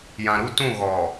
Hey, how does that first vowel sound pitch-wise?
low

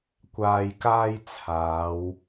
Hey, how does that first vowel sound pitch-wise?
low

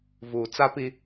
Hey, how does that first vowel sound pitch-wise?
low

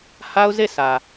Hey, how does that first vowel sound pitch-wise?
high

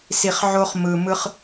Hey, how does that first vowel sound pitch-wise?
low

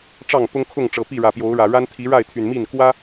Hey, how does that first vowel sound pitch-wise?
falling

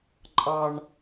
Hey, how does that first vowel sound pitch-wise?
high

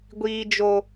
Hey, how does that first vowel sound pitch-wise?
high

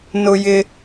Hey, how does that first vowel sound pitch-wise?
high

